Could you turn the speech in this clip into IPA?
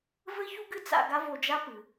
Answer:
v ɘ˥ ç u˥ ɡ ɨ˥ t͡s a̰˧ ɡ a˥ v o˧ d͡ʒ a˥ p ɨ˩

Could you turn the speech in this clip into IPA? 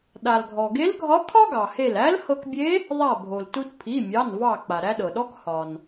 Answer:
ɗ a˩ l ɡʱ ɔ˩ ɡ e˧˥ l ɡʱ ɒ˧˥ kʰ ɒ˥ ɡ ɑ˩ h e˧˩ l æ˧˥ l h ɤ˧ k bʲ e˧˥ | ðˤ a˧˩ bʱ o˩ l t u˧ t pʰ i˩˧˩ mʲ ɑ˩˧˩ n v ɑ˧˩ k͡p a˩ ɾ æ˧ ɗ ɤ˩ ɗ ɔ˧˥ k h ɒ˩ n

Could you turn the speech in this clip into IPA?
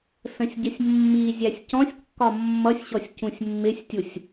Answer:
s ə̃ sʲ ɟ ə sʲ mː i zʲ æ sʲ c ɔ̃ sʲ kː ɒ mː ʌ sʲ ɕ ɔ sʲ c ũ sʲ mː ɪ sʲ tʲ u sʲ

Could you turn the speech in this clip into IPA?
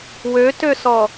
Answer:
w ø t ø s ɔ

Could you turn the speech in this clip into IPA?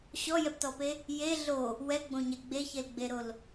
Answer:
ɕ ɔ j ɛ p t ɔ p e | j e ɮ o | w ɛ ɡ͡b õ ɲ ɛ ɡ͡b e ç e l ɡ͡b e ɾ o l

